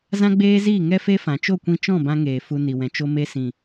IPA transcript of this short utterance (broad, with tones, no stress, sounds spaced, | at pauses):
z ã˦ ɡ͡b eː˦ z iː˦˨ ŋ ɛ˦ f e˦ f ã˨ t͡ʃ o˦˨ kʷ ĩ˧ t͡ʃ ɔ̃˦˨ b ã˦ ŋ eː˨ f u˧ n i˨ w ɛ̃˨ t͡ʃ o˧ m e˧ s ĩ˨